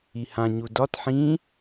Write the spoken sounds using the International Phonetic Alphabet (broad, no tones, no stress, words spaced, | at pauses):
ihã ɲudɒt ħĩ